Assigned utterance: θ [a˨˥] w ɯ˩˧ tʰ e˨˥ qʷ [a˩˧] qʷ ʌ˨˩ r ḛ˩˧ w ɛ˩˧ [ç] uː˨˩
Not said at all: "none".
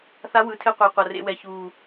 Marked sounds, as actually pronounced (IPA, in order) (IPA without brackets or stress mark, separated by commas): a˨˥, a˩˧, ç